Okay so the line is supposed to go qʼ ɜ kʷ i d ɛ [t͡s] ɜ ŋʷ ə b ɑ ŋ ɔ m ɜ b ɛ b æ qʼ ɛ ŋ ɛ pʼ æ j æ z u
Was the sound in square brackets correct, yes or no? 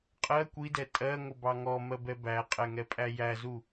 no